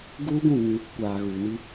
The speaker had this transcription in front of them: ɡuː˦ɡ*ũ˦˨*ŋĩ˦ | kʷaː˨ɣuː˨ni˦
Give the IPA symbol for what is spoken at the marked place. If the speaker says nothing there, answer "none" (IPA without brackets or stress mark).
ũ˦˨